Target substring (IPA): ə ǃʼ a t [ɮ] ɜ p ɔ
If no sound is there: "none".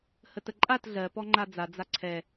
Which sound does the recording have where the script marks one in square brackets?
ɮ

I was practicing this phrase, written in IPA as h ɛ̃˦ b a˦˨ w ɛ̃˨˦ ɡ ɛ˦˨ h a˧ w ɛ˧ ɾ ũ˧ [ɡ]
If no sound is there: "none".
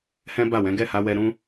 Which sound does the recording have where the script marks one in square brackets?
none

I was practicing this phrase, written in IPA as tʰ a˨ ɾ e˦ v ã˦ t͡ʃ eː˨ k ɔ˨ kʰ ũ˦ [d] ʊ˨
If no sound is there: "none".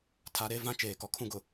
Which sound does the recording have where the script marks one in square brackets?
ɡ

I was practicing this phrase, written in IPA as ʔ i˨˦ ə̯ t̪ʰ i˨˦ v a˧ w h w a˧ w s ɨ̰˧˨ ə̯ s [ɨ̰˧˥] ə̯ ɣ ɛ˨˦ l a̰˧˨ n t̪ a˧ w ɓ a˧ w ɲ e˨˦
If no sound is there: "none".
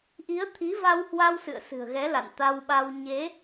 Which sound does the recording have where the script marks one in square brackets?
ɨ̤˨˩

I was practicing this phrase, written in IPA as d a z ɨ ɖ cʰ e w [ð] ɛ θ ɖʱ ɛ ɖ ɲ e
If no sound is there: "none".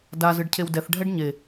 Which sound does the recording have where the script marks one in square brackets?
d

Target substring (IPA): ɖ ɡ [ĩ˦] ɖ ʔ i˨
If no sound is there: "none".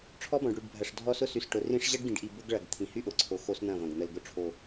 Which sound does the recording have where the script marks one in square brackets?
ĩ˨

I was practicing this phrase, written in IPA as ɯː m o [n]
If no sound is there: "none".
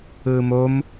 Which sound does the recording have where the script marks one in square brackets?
m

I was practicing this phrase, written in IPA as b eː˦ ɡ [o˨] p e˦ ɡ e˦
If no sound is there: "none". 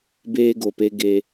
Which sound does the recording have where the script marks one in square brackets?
o˨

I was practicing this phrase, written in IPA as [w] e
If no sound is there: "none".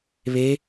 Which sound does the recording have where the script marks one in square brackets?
β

